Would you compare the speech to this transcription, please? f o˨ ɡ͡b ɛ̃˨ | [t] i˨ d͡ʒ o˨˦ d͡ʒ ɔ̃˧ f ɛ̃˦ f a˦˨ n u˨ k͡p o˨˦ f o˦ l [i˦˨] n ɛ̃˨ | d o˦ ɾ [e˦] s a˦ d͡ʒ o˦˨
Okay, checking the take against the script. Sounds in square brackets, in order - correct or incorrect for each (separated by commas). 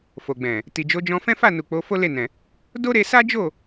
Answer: correct, incorrect, incorrect